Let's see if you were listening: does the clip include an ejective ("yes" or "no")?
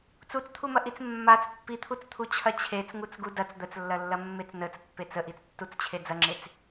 no